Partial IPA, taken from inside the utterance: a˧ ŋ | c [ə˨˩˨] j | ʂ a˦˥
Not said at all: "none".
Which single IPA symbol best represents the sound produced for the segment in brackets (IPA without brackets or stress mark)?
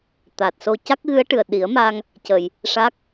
ə˨˩˨